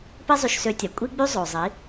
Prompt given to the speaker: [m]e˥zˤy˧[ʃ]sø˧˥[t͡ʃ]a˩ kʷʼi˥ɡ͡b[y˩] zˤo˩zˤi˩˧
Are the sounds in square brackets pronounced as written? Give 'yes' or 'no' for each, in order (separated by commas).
no, yes, no, no